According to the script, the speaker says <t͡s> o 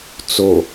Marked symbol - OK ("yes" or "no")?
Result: yes